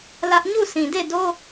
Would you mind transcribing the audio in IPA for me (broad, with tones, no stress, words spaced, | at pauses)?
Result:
lä˦ʔ ɲu˦˨sʰĩ˨de˦˨do˦